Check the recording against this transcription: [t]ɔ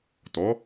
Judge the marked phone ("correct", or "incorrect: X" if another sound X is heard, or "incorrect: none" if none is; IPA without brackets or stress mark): correct